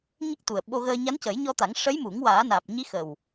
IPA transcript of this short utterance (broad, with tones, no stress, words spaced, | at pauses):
ɲə˦˥k̚t̪u˨˩ə̯ɓo˧ɣəː˧ ɲa˧˥ncə˨˩˦jɲɔ˧t̪a˨˩˦ŋ ʂə˧˥jmu˨˩˦ŋ waː˨˩˦naː˨˩p̚ ɲi˧˥xə˨˩w